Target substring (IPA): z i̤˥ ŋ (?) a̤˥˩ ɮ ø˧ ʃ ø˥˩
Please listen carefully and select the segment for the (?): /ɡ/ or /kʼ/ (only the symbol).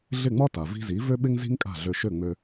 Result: kʼ